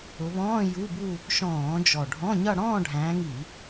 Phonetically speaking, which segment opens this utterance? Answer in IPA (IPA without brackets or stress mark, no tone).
ʊ